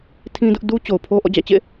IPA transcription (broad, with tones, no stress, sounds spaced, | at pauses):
tʰ ĩ˦ d ʊ˦ ʔ d u˦ t͡ɕ o˨ ʊ̯ pʰ o˦ ʔ ɔ̰˦˨ d͡ʑ ä̰˦˨ t͡ɕ ḛ˦˨